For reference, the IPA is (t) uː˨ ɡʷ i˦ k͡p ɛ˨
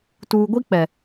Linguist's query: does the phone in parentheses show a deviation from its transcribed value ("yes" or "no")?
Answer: no